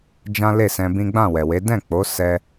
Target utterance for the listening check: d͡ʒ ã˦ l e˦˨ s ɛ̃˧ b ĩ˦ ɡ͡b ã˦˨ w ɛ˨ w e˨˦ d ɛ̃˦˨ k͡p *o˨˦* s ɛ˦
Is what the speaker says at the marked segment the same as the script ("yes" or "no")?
yes